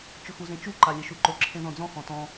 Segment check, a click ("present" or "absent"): present